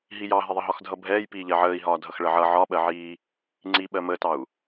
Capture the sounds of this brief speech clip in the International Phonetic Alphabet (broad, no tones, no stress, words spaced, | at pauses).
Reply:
ɦijɑɦɪðˤə ɦɒxdʱʌbʱɛːj piːʎɜʕəːi̯ɦɒː dʱʌxɭəʕʌ ʕɒɓɜʕiː | ŋ͡ǀiɓɜ məːtɑu̯